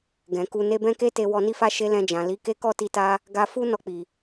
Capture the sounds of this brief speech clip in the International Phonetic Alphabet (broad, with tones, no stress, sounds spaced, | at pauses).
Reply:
ɡ ɛ̃˨ k u˧ n e˧ b ɛ̃˦ k e˦ t e˧ w ɔ˧ n i˦ f a˦ ʃ e˦ l ɛ̃˧ d͡ʒ ã˨ l i˨˦ k e˦ k ɔ˦˨ t i˧ t a˧ | ɡ a˧ f u˦ n ɔ˦˨ k͡p i˨